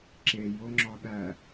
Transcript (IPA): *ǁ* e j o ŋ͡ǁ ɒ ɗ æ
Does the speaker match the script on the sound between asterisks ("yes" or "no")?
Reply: yes